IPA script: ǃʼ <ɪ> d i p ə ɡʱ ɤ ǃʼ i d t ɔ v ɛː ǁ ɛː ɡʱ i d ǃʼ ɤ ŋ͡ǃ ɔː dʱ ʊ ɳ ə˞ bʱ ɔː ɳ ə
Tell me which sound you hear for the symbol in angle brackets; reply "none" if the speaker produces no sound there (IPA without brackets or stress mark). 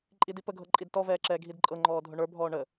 i